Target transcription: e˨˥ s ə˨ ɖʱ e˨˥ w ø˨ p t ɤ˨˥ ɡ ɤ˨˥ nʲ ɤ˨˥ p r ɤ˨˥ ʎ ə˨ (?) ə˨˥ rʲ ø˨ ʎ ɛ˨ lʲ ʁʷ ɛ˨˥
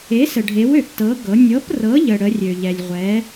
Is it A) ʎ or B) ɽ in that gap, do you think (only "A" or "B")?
B